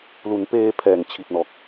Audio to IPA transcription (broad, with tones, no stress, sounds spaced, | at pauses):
l u˩˦ n p eː˧ pʰ ɛː˨˩ ŋ t͡ɕʰ i˨˩ t̚ n ɔː˨˩ k̚